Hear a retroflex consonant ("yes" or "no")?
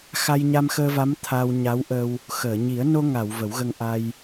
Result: no